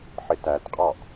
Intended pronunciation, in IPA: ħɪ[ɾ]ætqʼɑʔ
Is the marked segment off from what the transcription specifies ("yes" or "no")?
yes